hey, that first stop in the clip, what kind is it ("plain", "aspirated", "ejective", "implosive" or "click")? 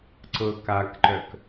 click